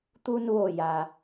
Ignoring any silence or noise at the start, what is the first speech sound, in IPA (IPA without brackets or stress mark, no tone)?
t̪